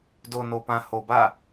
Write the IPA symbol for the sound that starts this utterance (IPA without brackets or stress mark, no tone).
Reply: d